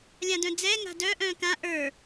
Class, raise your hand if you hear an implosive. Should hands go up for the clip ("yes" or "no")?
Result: no